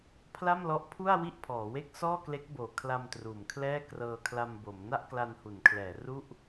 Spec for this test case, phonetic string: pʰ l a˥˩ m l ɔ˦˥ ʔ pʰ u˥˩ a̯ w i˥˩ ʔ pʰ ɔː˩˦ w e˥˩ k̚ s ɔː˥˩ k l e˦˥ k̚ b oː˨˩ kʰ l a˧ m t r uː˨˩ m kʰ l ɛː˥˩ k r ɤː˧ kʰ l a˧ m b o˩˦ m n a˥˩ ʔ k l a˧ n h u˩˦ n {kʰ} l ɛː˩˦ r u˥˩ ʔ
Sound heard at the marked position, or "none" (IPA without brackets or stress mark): kʰ